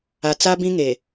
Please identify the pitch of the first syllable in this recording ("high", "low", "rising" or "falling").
low